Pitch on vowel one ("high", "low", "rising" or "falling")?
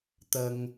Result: low